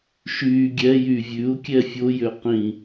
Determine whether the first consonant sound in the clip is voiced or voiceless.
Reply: voiceless